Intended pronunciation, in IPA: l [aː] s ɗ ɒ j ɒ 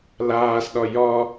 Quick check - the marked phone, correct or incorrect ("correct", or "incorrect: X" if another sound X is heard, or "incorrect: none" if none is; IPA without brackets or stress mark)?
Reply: correct